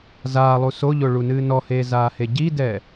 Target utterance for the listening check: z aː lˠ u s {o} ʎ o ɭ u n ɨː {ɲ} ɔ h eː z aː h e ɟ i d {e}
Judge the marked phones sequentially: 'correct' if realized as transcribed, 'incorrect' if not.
correct, incorrect: n, incorrect: ɛ

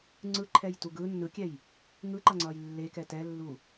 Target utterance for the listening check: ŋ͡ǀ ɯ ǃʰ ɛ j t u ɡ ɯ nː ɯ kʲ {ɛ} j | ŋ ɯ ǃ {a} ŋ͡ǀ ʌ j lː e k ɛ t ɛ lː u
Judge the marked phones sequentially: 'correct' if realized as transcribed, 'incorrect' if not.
correct, incorrect: ʌ

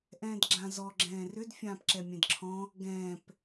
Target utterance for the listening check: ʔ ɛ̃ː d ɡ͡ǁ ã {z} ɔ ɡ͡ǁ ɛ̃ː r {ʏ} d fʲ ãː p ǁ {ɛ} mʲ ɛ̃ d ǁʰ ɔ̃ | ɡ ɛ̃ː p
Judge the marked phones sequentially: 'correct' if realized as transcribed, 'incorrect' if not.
correct, correct, correct

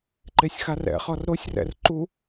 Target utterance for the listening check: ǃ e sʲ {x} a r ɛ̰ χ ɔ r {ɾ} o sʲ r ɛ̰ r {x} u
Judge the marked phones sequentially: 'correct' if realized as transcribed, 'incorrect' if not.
correct, correct, incorrect: ǃ

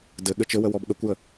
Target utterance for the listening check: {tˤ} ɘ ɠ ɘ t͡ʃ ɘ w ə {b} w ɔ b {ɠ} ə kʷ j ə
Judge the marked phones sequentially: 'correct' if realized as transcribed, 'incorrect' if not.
incorrect: d, incorrect: none, correct

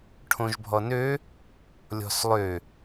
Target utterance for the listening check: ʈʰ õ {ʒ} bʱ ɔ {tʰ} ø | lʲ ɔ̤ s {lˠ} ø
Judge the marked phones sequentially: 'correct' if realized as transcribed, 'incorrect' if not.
correct, incorrect: n, correct

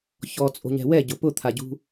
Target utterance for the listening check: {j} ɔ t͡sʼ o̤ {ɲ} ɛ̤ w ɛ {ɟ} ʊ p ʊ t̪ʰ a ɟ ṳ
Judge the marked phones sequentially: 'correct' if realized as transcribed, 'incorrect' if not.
incorrect: ç, correct, correct

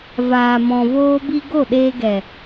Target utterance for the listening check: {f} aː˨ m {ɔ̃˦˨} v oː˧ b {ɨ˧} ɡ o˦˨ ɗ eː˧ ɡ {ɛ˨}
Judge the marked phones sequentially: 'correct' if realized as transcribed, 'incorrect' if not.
incorrect: v, incorrect: ɔ̃˨, incorrect: i˧, correct

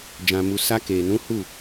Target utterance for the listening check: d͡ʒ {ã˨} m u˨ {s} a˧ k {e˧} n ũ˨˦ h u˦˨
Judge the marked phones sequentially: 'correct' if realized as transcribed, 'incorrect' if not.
correct, correct, incorrect: e˨

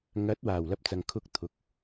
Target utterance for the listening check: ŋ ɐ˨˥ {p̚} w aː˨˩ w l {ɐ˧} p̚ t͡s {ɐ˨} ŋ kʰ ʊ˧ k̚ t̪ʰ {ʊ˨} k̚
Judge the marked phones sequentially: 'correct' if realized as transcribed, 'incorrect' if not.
incorrect: t̚, correct, correct, incorrect: ʊ˨˥

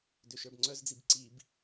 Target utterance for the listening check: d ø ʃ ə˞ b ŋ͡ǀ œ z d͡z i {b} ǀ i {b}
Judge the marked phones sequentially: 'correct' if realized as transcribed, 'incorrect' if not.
correct, correct

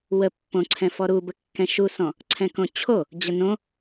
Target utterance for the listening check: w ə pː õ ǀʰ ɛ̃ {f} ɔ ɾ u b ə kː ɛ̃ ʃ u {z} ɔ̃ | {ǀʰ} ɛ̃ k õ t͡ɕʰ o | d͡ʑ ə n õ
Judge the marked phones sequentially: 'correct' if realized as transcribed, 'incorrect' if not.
correct, incorrect: s, correct

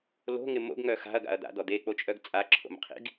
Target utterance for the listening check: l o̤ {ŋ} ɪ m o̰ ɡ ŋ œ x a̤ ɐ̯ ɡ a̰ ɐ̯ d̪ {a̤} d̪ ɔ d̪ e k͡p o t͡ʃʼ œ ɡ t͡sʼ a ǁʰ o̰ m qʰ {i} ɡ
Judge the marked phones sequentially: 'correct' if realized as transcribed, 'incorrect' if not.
correct, incorrect: a̰, incorrect: ḭ

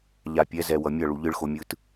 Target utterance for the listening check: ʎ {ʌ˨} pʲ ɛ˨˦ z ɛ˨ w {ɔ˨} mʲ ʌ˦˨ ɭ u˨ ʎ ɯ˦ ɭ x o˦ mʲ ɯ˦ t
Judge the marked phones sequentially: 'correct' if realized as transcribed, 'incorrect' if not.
incorrect: a˨, incorrect: ʌ˨

